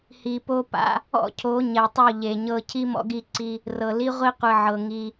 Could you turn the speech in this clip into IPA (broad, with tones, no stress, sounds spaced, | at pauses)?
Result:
h i˨ p o˦ p a̰˦ | ɔ̰˦ cʰ o˨˦ ɲ ɛ˨ tˤ o˦˨ ʎ e˨ ɲ ɤ˦ cʰ i˦ m ɔ̰˦ ɡ i˦˨ ǀ i˦ | r ɤ˨ l i˦ ʁʷ i˦ qʷ ɯ˨ ʕ ɤ˨ ŋ i˦